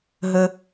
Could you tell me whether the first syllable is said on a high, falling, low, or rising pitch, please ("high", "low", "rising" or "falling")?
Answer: low